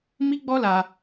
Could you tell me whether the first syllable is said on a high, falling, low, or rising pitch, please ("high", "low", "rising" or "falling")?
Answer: high